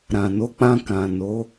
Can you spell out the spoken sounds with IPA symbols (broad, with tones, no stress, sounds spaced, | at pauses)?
ɾ ã˨ n o˨˦ k͡p ã˧ k ã˨ n o˨˦